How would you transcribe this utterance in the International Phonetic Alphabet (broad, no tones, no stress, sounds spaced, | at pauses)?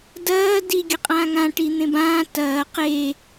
d ɐː d i ɡʲ ɐ qʼ ãː ŋ ã ʈ i n̪ ẽ b ãː t ɐː q e